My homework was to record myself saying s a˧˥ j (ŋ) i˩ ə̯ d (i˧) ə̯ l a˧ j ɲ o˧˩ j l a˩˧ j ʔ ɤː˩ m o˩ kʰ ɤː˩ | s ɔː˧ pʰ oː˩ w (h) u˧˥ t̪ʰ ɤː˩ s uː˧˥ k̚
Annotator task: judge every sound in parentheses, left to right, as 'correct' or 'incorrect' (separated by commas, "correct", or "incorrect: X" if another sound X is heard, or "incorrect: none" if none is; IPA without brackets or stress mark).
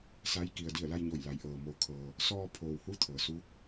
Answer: incorrect: k, incorrect: i˧˩, correct